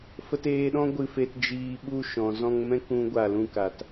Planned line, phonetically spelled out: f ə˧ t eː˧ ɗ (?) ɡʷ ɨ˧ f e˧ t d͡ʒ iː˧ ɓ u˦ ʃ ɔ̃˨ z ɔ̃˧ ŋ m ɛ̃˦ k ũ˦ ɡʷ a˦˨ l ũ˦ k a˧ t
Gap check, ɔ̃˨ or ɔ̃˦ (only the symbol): ɔ̃˦